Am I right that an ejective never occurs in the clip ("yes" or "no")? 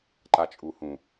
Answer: no